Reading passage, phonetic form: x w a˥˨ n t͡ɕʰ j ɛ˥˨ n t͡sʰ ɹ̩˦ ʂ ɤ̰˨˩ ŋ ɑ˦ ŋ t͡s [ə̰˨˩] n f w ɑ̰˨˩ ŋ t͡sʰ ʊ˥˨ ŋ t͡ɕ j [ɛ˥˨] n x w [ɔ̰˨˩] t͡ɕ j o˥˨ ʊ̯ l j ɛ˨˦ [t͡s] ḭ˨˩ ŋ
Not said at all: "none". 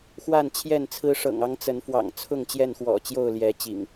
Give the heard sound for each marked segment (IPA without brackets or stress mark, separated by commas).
ə˨˦, ɛ˥˨, ɔ̰˨˩, t͡ɕ